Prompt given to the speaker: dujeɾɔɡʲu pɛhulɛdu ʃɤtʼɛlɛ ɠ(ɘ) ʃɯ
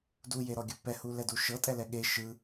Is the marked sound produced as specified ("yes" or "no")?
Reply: no